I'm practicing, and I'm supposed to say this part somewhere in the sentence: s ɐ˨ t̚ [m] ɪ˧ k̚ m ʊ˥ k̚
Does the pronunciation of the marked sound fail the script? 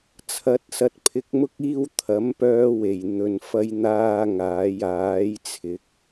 yes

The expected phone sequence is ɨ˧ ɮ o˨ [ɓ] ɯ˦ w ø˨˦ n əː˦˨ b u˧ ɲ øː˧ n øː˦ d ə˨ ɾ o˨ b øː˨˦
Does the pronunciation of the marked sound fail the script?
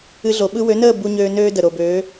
no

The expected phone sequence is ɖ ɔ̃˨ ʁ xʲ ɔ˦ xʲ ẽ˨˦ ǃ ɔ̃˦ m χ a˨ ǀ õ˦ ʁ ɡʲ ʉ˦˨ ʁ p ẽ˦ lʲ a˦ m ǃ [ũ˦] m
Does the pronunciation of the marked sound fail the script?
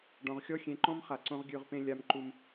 yes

